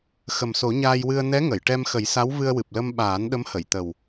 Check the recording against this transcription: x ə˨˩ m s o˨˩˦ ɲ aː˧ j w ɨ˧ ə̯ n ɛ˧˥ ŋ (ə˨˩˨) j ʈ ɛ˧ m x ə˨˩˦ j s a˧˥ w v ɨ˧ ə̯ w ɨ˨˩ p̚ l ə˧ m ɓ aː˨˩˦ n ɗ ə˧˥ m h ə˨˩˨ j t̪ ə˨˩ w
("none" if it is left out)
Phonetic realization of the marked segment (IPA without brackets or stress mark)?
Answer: ə˨˩˨